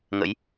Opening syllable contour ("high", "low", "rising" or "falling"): rising